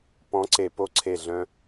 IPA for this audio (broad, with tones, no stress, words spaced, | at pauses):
pɔ̃˨˦ǀe˨ po˦ǀʰe˦˨ɮœ̃˦